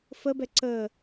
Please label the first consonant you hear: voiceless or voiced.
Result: voiceless